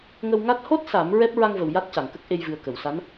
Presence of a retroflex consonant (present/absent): absent